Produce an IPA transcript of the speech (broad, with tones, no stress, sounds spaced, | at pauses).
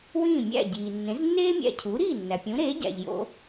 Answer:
w ĩː˥˩ mʲ æ̰˥˩ ɟ iː˩ nː ẽ˩˥ z nː eː˥ mʲ æ̰˧ cʰ u˩˥ ɾ iː˥˩ nː æ˩ pʲ ũ˩˥ ɾ eː˩˥ ɟ æ̰˩ ʎ j o̰˧